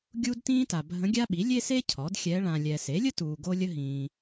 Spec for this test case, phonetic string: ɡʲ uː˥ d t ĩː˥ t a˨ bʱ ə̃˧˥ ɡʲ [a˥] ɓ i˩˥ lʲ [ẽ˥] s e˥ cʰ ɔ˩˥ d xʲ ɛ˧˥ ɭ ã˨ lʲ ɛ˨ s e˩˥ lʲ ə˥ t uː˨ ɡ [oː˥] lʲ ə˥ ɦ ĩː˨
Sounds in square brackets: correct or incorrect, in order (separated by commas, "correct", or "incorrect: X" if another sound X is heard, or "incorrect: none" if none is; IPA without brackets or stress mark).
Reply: correct, incorrect: e˥, incorrect: o˥